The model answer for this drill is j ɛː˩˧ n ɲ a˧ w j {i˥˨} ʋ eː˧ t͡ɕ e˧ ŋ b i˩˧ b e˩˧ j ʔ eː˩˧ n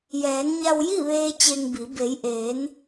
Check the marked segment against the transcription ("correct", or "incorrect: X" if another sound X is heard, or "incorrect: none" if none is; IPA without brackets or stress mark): correct